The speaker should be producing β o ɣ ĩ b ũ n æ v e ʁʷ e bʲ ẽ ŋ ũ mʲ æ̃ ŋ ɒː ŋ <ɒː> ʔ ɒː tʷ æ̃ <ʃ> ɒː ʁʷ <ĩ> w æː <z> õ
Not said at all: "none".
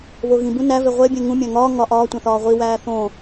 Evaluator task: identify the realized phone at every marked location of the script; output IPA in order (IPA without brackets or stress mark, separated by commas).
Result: ɒ, θ, i, θ